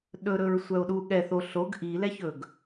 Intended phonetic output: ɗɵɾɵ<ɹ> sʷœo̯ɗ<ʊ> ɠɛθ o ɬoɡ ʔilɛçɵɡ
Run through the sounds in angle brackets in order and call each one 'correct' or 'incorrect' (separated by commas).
correct, incorrect